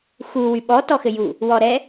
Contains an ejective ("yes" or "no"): no